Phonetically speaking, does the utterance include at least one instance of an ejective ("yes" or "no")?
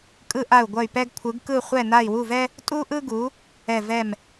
yes